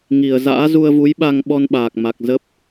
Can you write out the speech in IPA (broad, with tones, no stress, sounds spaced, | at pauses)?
ŋ i˨˩ ə̯ z a̰ː˧˥ z u˧ ə̯ v u˨˦ j ɓ a˧ ŋ ɓ ɔ˧ n ɓ aː˨˩ k̚ m a˨˩ k̚ z ə˦˥ p̚